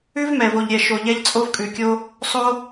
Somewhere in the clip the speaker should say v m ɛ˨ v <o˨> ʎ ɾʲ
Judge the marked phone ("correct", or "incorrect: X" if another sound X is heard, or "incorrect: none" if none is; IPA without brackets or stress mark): correct